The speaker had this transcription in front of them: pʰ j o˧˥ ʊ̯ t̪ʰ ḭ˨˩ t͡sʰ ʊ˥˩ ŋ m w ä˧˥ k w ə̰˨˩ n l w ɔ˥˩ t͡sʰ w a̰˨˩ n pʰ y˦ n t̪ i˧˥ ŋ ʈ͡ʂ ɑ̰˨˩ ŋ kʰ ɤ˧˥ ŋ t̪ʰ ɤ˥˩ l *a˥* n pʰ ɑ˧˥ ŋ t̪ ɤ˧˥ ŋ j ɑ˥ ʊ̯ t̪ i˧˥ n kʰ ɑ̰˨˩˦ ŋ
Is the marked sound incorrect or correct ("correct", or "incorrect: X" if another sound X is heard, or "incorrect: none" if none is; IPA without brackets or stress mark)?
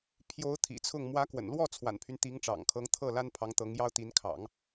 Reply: correct